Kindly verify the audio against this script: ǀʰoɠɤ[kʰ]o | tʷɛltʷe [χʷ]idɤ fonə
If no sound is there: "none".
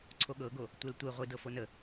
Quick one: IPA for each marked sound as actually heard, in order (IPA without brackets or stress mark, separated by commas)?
ɡ, ʁʷ